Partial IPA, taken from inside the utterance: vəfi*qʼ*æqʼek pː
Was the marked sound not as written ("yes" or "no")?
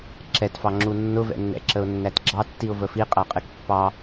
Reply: no